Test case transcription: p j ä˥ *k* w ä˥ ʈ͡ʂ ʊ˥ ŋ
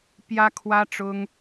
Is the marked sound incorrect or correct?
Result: incorrect